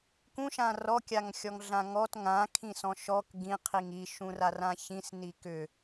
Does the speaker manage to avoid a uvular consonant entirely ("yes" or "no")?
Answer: no